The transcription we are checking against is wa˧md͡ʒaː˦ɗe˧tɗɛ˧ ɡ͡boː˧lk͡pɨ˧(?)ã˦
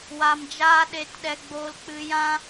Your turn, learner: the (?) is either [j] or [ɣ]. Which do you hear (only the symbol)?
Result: j